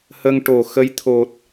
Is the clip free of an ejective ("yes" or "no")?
yes